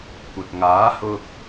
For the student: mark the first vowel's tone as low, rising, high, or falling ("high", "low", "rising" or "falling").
low